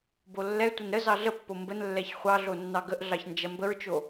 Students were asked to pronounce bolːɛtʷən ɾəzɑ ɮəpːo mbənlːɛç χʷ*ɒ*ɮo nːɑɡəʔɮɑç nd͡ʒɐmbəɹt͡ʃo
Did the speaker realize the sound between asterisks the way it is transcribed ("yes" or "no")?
no